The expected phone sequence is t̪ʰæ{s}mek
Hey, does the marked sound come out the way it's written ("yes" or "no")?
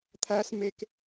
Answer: yes